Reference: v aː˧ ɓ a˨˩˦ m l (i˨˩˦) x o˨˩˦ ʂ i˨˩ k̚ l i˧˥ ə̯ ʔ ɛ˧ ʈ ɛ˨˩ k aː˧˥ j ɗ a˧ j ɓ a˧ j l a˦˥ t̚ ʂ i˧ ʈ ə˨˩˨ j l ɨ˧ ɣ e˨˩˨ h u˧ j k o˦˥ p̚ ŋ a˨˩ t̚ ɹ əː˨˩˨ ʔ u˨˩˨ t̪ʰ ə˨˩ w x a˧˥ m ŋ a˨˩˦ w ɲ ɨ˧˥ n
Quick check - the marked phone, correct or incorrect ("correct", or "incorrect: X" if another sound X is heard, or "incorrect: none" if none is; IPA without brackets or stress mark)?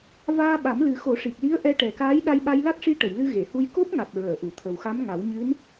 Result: incorrect: ɨ˨˩˦